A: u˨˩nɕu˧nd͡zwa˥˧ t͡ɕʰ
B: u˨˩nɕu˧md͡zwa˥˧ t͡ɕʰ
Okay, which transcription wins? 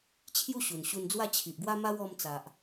A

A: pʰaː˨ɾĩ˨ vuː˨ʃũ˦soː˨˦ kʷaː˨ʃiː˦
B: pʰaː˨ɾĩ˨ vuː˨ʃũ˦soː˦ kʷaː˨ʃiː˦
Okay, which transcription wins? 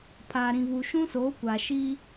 A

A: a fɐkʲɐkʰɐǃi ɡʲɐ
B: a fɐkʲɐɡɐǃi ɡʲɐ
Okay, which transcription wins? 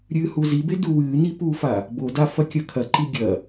A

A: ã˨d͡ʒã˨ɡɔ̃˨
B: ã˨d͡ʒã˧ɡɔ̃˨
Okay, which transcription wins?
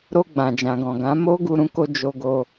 A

